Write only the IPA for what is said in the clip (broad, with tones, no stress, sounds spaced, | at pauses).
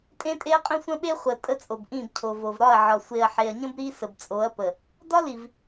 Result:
tʼ ẽ˦ tʼ e˦ ɐ̯ qʼ ə̃˦ sʷ ə̃˦ ɓ e˦ χʷ ə˨ tʼ ə˦ t͡sʼ o˨ b ʔ ĩ˦˨ b cʰ o˨ v o˨ v ɾ ɒ˦˨ ɐ̯ ʕ ɒ˨ sʷ e˨ ɐ̯ ħ e˨ ɐ̯ ɲ ə̃˦ b ɾ i˦ s ə˨ b t͡sʼ o˨˦ ɐ̯ p ə˨ | d ɒ˦ l i˨ v